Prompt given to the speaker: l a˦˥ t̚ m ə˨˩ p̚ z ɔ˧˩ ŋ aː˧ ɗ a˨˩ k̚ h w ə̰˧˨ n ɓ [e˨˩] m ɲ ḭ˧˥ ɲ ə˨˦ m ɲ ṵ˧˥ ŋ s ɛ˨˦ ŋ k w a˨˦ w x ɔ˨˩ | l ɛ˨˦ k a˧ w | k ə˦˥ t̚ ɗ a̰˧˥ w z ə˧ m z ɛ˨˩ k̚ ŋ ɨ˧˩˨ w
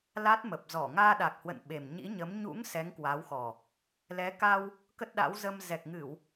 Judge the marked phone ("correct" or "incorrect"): correct